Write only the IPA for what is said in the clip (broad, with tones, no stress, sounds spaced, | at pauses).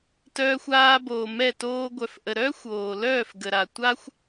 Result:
t œː˧ xʷ aː˧ b oː˨ m ɛ˦˨ t oː˦ ɡʷ œ˨ f ʔ ə˨ ɾ œː˦ xʷ oː˨ l œː˦˨ f ɡ ə˨ ɾ a˨ tʷ a˦ xʷ